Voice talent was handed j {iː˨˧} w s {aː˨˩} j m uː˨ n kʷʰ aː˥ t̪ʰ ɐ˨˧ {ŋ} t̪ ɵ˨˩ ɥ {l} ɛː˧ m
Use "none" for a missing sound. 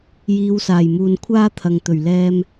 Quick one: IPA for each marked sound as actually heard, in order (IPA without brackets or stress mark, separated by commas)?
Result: iː˨˧, aː˨˩, ŋ, l